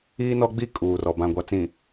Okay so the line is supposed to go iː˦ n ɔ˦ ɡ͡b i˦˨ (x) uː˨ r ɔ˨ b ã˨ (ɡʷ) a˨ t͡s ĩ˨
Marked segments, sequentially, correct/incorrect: incorrect, correct

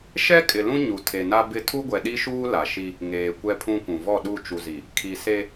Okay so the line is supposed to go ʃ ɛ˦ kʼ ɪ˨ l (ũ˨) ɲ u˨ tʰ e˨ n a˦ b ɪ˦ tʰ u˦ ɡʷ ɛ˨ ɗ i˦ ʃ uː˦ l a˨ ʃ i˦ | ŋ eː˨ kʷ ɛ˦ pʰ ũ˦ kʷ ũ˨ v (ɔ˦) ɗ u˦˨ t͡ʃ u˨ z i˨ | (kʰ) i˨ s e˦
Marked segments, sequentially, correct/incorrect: incorrect, incorrect, correct

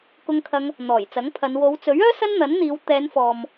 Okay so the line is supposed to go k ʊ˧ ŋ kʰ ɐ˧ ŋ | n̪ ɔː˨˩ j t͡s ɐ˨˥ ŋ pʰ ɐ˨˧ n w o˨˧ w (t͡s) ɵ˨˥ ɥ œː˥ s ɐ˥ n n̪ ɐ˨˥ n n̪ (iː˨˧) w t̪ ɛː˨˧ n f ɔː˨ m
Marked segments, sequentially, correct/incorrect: correct, correct

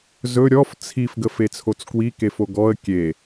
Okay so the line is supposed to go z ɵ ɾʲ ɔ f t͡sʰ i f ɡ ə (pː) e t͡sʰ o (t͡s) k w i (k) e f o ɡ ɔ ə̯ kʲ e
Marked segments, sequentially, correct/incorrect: incorrect, correct, correct

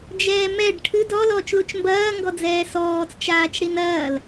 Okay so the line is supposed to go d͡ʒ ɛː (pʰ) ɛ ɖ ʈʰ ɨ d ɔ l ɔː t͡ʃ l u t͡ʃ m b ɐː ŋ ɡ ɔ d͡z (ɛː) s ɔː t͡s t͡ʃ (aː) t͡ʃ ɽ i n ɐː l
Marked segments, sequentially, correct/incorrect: incorrect, correct, correct

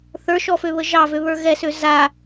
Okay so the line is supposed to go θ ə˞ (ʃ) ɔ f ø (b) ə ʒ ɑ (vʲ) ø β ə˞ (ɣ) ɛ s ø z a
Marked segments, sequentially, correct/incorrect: correct, incorrect, incorrect, correct

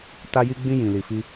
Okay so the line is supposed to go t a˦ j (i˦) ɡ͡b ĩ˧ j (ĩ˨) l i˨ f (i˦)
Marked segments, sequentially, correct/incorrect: correct, correct, incorrect

